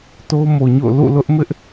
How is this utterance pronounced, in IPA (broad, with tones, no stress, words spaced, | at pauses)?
to˦ʊ̯mo˨ɲo̰˦˨ʊ̯ lṵ˦˨lʊ˦ʔmɪ˦ʔ